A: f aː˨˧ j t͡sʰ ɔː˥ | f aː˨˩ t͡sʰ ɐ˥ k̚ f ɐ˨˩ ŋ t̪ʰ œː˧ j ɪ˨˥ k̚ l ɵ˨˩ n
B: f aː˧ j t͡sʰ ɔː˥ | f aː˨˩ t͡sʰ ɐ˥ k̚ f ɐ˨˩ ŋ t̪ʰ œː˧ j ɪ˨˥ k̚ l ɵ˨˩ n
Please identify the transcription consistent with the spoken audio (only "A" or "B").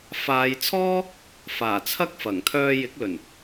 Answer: A